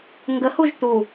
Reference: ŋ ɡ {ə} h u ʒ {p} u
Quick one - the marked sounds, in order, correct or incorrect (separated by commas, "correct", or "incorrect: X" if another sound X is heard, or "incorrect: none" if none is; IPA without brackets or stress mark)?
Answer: correct, incorrect: t̪